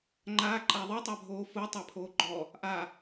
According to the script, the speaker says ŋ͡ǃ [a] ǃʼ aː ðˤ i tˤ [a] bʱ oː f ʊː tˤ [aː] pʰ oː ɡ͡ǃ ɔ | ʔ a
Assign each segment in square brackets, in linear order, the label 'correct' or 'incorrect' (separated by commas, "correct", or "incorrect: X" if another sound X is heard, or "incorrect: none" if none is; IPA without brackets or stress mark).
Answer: incorrect: aː, correct, incorrect: a